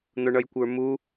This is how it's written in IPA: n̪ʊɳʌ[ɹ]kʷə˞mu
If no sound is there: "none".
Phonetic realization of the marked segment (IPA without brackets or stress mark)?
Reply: j